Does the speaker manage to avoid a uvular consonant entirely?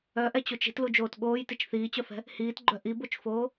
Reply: yes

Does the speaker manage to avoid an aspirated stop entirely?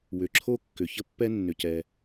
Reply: no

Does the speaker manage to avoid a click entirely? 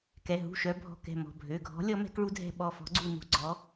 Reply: no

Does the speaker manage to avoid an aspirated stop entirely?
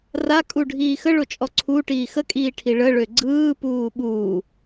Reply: no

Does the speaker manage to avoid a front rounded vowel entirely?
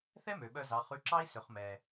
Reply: no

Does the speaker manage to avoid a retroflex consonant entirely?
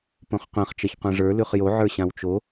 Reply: no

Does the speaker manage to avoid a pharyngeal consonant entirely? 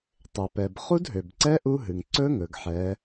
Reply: no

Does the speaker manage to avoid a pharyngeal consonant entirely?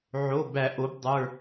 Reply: no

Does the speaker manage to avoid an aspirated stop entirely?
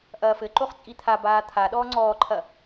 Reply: no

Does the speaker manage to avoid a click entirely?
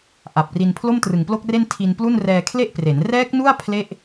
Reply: yes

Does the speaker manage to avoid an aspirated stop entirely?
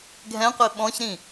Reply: yes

